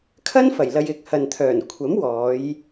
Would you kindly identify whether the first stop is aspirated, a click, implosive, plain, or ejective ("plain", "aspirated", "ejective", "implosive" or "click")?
aspirated